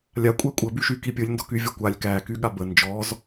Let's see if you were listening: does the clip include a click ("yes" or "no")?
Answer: no